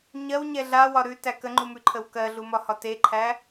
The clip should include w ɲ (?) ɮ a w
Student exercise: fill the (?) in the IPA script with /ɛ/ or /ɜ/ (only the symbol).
ɛ